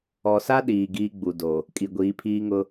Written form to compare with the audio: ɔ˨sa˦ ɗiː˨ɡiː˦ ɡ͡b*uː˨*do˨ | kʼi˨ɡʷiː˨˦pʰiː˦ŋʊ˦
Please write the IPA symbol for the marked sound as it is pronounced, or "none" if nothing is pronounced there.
u˨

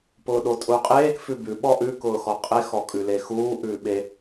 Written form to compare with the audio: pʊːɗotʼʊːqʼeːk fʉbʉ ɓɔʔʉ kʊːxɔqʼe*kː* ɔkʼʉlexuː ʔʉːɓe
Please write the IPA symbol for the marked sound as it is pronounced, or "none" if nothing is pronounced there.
x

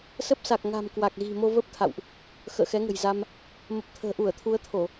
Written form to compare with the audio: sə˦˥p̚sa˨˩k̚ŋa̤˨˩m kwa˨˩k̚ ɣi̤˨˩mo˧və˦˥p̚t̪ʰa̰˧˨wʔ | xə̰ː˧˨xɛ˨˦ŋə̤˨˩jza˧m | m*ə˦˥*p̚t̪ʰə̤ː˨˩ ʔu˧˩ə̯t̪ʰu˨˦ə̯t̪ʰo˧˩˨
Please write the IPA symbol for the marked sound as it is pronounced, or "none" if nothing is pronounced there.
ə˨˩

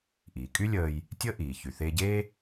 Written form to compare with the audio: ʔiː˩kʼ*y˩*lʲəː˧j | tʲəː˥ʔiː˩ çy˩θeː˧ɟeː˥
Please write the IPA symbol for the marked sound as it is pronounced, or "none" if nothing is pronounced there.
y˥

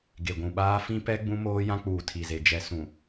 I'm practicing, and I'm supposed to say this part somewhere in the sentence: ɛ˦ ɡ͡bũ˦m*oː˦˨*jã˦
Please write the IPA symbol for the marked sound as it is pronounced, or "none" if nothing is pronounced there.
oː˦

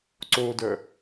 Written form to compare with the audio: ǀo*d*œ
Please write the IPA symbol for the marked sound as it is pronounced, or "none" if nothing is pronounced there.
d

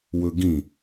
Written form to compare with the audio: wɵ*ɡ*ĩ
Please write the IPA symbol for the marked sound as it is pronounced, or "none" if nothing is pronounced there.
ɡ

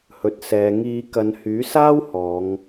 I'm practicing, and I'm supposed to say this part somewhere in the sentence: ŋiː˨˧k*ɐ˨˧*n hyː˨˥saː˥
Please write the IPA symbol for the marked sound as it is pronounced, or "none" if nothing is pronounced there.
ɐ˨˧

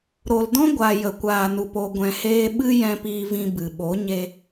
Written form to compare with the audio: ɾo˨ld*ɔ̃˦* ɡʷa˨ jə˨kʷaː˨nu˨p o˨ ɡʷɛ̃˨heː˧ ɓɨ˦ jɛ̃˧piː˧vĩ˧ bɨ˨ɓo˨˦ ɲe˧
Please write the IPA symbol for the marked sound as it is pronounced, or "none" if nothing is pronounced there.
ɔ̃˦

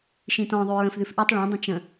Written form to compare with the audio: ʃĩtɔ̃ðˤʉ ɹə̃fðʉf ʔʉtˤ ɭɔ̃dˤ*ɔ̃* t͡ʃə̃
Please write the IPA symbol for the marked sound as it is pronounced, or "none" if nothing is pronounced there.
ə̃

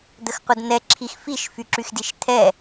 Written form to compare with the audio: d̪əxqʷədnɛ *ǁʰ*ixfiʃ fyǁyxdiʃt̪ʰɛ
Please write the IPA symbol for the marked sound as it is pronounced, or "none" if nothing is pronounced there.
ǁʰ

